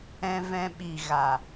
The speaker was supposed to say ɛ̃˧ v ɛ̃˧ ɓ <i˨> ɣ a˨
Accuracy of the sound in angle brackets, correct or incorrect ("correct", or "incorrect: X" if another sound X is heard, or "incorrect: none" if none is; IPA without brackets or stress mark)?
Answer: correct